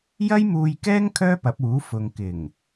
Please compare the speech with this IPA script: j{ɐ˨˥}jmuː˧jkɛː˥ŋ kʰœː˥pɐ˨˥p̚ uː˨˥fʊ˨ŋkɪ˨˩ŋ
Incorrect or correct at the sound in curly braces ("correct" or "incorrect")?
incorrect